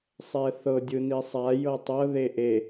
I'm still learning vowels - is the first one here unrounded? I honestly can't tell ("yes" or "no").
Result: yes